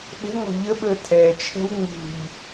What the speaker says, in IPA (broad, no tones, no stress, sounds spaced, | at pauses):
ɓ ə̤ ŋ ɔ̤ ʎ ə ɓ əː tʰ ɛ t͡ʃʰ ɛ̤ w ŋ͡m ṳ ʎ